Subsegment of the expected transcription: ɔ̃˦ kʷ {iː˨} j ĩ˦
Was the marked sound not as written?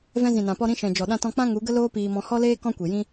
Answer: yes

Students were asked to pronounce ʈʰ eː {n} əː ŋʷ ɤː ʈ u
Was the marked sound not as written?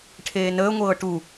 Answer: no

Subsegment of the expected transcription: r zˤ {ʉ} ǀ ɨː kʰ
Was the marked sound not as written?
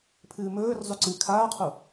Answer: no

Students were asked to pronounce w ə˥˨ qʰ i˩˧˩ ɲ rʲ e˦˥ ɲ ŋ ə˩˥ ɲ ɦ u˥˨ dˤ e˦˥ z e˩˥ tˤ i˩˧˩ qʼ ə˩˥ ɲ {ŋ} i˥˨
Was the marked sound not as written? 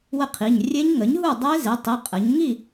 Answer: no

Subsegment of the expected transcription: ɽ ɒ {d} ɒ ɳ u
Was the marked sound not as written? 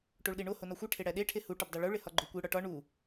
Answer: yes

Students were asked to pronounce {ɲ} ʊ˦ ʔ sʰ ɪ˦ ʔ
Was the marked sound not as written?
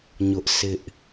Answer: no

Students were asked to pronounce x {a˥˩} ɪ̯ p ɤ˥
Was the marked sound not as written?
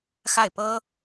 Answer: no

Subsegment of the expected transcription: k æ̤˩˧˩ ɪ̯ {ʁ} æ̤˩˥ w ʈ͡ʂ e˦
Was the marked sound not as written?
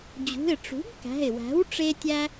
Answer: yes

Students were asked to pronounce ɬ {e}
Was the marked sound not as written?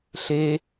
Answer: no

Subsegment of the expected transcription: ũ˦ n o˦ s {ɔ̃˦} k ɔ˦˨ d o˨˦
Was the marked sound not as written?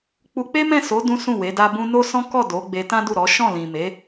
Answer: no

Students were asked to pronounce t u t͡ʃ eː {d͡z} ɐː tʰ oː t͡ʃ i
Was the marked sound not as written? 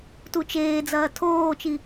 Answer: no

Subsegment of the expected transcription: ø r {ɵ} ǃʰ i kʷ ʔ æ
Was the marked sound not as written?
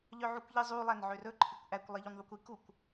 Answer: no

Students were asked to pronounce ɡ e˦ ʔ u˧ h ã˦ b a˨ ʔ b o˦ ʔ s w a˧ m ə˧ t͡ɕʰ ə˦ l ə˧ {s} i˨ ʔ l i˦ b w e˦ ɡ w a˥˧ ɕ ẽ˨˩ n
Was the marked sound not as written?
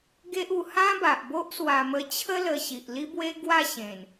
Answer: yes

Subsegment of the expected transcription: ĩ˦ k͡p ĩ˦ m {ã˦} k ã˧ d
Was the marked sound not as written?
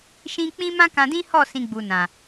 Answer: no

